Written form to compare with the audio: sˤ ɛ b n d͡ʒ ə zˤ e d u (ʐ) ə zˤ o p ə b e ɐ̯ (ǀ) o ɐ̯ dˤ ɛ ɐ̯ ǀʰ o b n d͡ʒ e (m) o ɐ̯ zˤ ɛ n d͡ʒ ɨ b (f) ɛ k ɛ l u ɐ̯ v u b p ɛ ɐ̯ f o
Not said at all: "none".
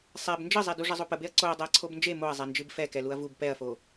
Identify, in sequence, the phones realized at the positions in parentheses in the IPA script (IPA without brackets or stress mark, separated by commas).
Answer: ʐ, ǀ, m, f